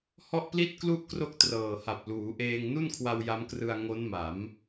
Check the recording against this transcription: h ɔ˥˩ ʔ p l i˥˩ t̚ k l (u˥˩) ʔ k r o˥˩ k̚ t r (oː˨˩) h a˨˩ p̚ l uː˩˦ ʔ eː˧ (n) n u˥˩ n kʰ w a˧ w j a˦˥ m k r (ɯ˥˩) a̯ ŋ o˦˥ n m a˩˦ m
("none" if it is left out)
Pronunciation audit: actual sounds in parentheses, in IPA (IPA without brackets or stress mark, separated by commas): u˥˩, ɤː˨˩, ŋ, ɯ˧